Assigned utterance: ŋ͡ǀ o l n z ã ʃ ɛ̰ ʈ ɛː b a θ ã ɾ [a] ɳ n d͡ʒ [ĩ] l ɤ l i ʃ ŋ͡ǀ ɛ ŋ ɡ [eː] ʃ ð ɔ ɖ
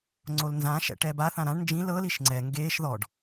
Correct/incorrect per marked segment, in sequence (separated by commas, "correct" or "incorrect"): incorrect, correct, correct